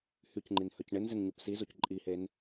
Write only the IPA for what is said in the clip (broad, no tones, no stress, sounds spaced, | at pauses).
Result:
h y c ŋ͡ǃ i n h œ c ɳ ɪ n z ɪ n ɲ o p s i z o c ǃʼ i h e n